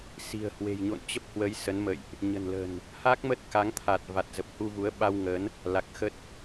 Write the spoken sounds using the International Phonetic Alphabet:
s i̤˨˩ ə̯ h w e̤˨˩ j ɲ o̰˧˨ n t͡ɕ ə˦˥ p̚ h w ə˨˦ j s ə˨˦ n m ə̰˧˨ j ʔ | ɲ ə̤˨˩ n l ə̤˨˩ n | h a˦˥ k̚ m ə˦˥ t̚ k a˨˦ ŋ t̪ʰ a˨˩ t̚ v a˨˩ t̚ z ə˨˩ p̚ h u˧ v u˨˦ ə̯ ɓ a˧ w ŋ ə˨˦ n | l a˨˩ k̚ x ə˦˥ t̚

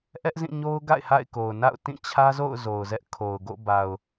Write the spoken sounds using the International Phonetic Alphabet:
ʔ ɛ˦ ʔ z ĩ˦˨ ɲ o˦ ʊ̯ ɡ a̰˦˨ ɪ̯ h a̰˦˨ ɪ̯ k o˨ ʊ̯ n a̰˦˨ ʊ̯ t ĩ˦˨ t͡ɕʰ ä˦ z o̰˦˨ ʊ̯ z o˨ ʊ̯ z ɛ˦ ʔ kʰ o˨ ʊ̯ ɡ o̰˦˨ b a˨ ʊ̯

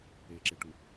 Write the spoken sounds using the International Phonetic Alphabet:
e ǁ e ʈ u

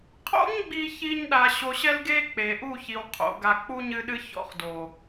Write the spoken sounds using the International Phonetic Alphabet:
qʰ o̰˦ ɲ ɡ͡b i˧ ç i˧ ɲ ɗ a˧ ɕ o˧ ɕ ɛ˦ l ɡ e˦ k͡p e˨ ʔ u˦˨ ç i˨ w qʰ o̰˨ ɡ a˧ k͡p u˦ ɲ ɨ˦ ɗ ɨ˦ ç ɔ̰˧ χ d o˨

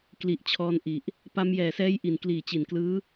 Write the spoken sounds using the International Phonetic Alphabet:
k l i˨˩ ʔ t͡ɕʰ ɔː˧ n ʔ i˨˩ ʔ | p a˧ m j ɛː˨˩ s ɛː˦˥ j ʔ i˨˩ n k l iː˨˩ t͡ɕ i˨˩ n k l ɯː˦˥

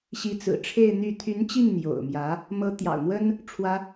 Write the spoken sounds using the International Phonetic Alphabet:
ɕ i˧˥ t͡s ɹ̩˨˩ ʈ͡ʂʰ e˥˧ ɪ̯ n̪ y˥˩ t̪ʰ y˧˥ n t͡ɕ i˥˩ ŋ n̪ j o̰˨˩ ʊ̯ m j ä˧˥ | m ɤ˧˥ t̪ j ɑ̰˨˩ ʊ̯ n̪ w ə˥ n | ʈ͡ʂʰ w ä˥

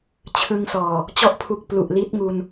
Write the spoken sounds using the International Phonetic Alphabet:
t͡ɕʰ ɯ˧ ŋ s ɔː˨˩ | t͡ɕ ɔ˦˥ ʔ pʰ u˨˩ k̚ p l u˨˩ ʔ l i˦˥ t̚ ŋ u˧ n

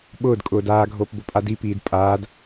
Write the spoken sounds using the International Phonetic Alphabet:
ɓ ʊː d kʼ ʊː d aː ɡʱ oː p b ʊ pʼ a d i p iː d pʼ aː d

